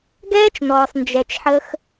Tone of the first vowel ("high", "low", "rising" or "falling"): high